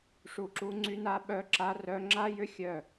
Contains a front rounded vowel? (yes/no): yes